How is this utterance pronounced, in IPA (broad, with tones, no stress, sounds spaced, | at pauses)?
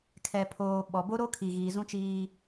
kʰ ɛ˨ pʰ oː˨ ɓ ɔ˨ b o˦ ɾ o˦ kʰ i˨ ɣ iː˨ z ũ˦ t͡ʃ iː˦